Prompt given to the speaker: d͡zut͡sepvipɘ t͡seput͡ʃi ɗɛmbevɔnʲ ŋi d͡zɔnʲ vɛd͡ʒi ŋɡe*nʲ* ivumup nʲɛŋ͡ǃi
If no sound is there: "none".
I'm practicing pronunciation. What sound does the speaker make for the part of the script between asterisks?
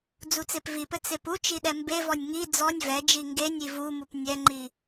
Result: nʲ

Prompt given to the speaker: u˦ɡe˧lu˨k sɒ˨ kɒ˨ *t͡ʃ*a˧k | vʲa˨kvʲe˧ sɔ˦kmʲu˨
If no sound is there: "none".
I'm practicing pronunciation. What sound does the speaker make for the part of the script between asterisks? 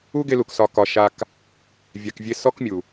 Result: ʃ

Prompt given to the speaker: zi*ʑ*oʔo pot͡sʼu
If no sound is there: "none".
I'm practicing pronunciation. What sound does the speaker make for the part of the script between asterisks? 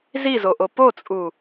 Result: z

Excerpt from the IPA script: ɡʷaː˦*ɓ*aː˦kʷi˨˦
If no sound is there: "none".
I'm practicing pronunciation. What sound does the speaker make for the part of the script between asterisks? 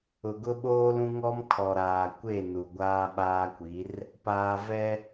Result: ɓ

